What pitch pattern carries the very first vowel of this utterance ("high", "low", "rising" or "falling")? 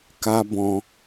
high